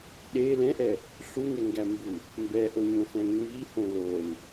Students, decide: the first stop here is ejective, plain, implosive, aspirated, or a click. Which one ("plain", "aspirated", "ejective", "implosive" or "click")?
implosive